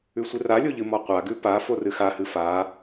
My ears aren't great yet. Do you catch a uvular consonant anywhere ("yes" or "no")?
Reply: yes